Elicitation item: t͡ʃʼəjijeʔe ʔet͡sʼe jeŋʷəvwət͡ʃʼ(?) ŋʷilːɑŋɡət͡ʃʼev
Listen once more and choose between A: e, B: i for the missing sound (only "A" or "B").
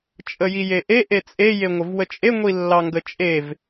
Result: A